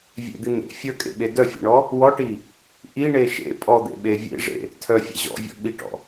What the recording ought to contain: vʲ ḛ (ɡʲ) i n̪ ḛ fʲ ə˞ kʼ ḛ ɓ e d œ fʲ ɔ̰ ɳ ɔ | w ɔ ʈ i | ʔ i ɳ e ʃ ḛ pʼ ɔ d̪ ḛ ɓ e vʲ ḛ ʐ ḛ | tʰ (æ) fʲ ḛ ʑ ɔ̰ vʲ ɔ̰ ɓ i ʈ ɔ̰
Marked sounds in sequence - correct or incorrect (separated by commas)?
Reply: incorrect, incorrect